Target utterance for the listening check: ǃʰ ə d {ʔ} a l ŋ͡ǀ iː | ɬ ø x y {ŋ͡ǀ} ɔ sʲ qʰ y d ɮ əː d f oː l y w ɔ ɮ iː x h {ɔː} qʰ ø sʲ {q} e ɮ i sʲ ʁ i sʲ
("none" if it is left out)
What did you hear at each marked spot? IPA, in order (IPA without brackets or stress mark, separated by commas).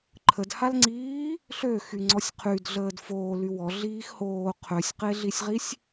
h, ŋ͡ǀ, oː, q